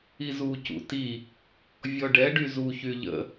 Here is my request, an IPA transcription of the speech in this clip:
izu cṵti | vʲɔɖɛ ɖyzu çyʎə̰

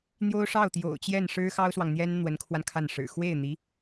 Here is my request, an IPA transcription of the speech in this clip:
n̪jo˥ʊ̯ʂɑ˥˩ʊ̯ t̪jo̰˨˩ʊ̯t͡ɕjɛ˥˩nʂɻ̩˥ xɑ˥ʊ̯swɑ˨ŋn̪jɛ˥n n̪wə˧˥nkʰwa˧n kʰa˥˩nʂɻ̩˨˩ xwe˥˩ɪ̯n̪i˧˥

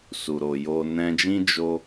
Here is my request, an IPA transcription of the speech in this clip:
su˨ɾo˨ jo˧ nɛ̃˧d͡ʒĩ˦ d͡ʒo˦

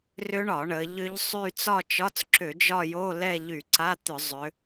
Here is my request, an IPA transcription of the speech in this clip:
rʏ˦˥ɳɒ˧˩˧ ɳə˩˧ʎʏ˦˥ʎsˤy˥˧ t͡sɒ˥˧t͡ʃɒ˧˥˧t͡sǁʏ˧˩˧ d͡ʒɒ˥˧jo˧˥˧ lɛ˥˧ʎy˧˩˧ǀa˧˥˧t̪ʏ˧˩˧ zˤʏ˩˧

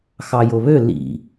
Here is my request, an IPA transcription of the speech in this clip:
xɑjoβø lḭ

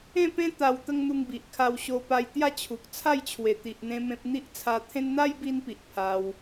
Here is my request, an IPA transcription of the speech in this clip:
ẽ˥˧pẽ˦ t̪a˧wt̪ə˦ŋn̪u˧ŋbi˨ʔ kʰa˧wɕo˧ pa˧j t̪ja˥˧t͡ɕʰu˨k̚ t͡sʰa˥˧jt͡ɕʰwe˨˩t̪i˨ʔ n̪ẽ˦mẽ˦p̚ n̪i˦ʔt͡sʰa˧t̪ʰẽ˦n n̪a˦jbi˧npi˨ʔ pʰa˧w

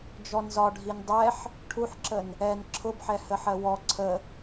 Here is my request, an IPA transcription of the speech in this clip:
d͡ʒɔnzɒɖʱin dˤɛħ | ʈʰuħǁən | ɛn ǁʰʊbħɛ həħɜwɔ ǀʰə

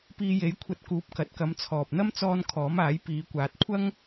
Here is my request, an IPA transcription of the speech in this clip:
piː˧je˨˥j kʷʰɐ˧t̚kuː˨˥p̚ kɐ˨t̚kɐ˨˧mt͡sʰɔː˨p̚n̪ɐ˥m t͡sɔː˧n kʰɔː˨˥maː˨˥j piː˨˧kʷaː˨t̚ kʷʰɐ˥ŋ

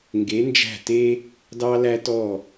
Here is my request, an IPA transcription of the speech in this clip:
ŋɡe˩˧nd͡ʒæ̤˧˩te˧ | dɑ˧læ˧tɔ˧˩

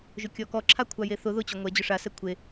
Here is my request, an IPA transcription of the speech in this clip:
ʒʊkʲɔkɔǁʰa kʷʰajeθʊ ðʊ t͡ɕɔŋʷɛ d͡ʑʊʂasɛ kʷʰe

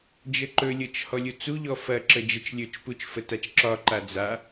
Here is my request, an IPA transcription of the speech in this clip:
d͡ʒəǃɵlʲɤt͡ʃ hɔlʲut͡suʎɔ fɐ ǁəd͡ʒət͡ʃlʲɵt͡ʃput͡ʃ fətat͡ʃǁɒǃa d͡za

